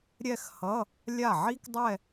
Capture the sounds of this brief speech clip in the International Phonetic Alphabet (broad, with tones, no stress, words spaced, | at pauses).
ɾʲɛ˥˧xhʌ˧˥˧ | lʲa˥˩ʕi˥kdˤɛ˥˧